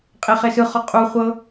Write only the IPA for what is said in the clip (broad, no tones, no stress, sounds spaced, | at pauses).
qʼ e χ e s ɯ χ ɔ qʼ u χʷ ɤ